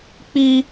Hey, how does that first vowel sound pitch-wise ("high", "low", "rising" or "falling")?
high